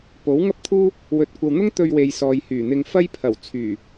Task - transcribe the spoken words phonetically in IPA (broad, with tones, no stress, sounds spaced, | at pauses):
p o˨˥ w ŋ ɐ˥ p̚ t̪ʰ uː˥ | w ɵ˨ t̚ kʷ ɐ˨ w n̪ ʊ˥ ŋ t̪ ɵ˧ ɥ w e˨ j s ɔː˨ j h yː˨˩ n̪ ɪ˧ ŋ f ɐ˥ j pʰ ɐ˨˩ w t͡sʰ yː˨˩